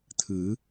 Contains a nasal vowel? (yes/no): no